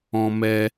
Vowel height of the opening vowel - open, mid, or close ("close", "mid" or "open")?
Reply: mid